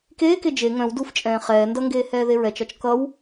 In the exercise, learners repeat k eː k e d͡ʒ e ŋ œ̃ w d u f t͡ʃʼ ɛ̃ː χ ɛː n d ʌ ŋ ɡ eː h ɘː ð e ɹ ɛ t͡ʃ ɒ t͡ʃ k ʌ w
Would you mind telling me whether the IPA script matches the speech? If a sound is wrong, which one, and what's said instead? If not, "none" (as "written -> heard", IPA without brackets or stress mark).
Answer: ɘː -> ɛː